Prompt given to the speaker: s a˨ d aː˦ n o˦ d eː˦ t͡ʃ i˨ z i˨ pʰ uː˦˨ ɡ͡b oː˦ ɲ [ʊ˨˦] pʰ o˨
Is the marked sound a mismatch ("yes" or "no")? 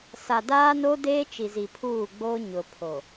yes